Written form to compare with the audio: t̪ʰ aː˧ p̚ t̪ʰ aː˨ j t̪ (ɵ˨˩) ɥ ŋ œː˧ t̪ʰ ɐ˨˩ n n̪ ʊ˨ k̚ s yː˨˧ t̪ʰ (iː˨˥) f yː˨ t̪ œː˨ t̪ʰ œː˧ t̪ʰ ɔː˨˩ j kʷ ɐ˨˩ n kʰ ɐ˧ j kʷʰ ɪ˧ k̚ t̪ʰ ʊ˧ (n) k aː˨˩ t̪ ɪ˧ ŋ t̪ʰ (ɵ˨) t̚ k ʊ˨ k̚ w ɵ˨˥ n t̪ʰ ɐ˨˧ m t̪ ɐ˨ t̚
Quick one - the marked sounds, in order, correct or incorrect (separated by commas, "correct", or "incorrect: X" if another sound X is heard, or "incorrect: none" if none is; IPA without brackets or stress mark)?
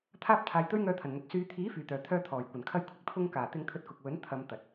incorrect: ɵ˥, correct, incorrect: ŋ, incorrect: ɵ˧